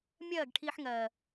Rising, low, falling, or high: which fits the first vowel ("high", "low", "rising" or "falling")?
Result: falling